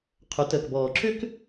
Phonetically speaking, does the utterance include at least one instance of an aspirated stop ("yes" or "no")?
yes